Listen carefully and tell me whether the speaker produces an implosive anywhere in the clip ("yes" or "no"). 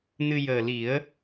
no